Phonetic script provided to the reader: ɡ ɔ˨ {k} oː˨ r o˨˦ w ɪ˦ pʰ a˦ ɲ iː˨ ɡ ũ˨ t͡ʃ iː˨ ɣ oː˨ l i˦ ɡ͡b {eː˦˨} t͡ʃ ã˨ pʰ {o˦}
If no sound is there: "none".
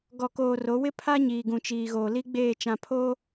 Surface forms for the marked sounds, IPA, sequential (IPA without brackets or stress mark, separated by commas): k, eː˦˨, o˦